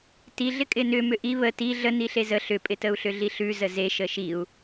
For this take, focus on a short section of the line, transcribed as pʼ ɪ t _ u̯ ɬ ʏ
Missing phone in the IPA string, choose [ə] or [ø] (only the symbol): ə